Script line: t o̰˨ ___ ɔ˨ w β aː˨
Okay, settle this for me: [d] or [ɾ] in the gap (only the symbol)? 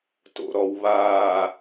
ɾ